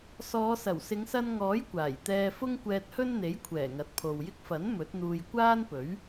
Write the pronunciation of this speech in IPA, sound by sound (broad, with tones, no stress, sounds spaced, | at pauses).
s ɔː˨˧ s ɐ˨˩ w s ɪ˨˧ ŋ s ɐ˧ n ŋ ɔː˨˥ j kʷ aː˨˩ j t̪ ɛː˧ f ʊ˥ ŋ kʷ ɛː˧ t̚ h ɵ˥ n n̪ e˨˥ j kʷʰ ɛː˨˩ ŋ ɐ˨˥ t̚ pʰ o˨ w j ɪ˥ k̚ f ɐ˨˥ n m ɵ˨˥ t̚ n̪ uː˧ j kʷ aː˥ n p ɵ˨˥ ɥ